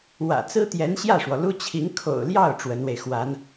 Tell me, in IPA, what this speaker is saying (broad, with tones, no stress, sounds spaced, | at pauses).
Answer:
w ä̰˨˩ t͡s ɹ̩˥ t̪ j ɛ˧˥ n ɕ j ä˥˩ ʂ w ɔ˩ l u˥ t͡ɕʰ i˧˥ ŋ kʰ o̰˨˩ ʊ̯ l j ɑ˥˩ ʊ̯ ʈ͡ʂ w ə˧˥ n w e˧ ɪ̯ x w a˧˥ n